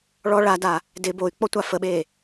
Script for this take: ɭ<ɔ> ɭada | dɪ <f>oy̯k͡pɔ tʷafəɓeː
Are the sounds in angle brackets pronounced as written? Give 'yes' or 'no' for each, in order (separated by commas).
yes, no